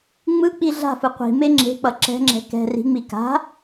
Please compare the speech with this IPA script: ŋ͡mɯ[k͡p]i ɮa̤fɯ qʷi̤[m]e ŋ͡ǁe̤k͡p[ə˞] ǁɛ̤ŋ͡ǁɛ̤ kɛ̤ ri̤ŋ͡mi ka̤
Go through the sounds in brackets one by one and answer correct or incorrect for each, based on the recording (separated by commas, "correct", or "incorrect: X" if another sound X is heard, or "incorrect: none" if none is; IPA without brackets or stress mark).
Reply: correct, correct, incorrect: ʌ